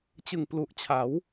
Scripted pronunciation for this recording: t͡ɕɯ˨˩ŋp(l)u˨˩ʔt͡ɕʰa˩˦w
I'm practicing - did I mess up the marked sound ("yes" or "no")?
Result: no